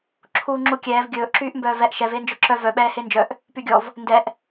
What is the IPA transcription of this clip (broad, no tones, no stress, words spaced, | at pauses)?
ǁʰuːŋ͡ǁukʲɛːv ɡʲɵːʔ ǁyːʔmbœːvɛʔ ʃɛv eːnd͡ʒœǁœ vœ ɓɛːhend͡ʒœʔ | pyɡʲɔv | ndɛʔ